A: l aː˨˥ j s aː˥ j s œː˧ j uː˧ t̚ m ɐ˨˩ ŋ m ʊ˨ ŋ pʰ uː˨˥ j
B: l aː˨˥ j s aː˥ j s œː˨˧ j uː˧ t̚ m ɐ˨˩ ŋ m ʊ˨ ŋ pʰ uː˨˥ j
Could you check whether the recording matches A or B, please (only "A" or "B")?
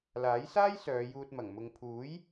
B